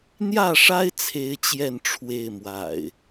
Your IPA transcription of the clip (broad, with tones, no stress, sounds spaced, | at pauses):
n̪ j ä˥˨ ʂ a˦ ɪ̯ t͡sʰ e˦ ɪ̯ t͡ɕ j ɛ˥˨ n ʈ͡ʂʰ w e˥˨ ɪ̯ m w a̰˨˩ ɪ̯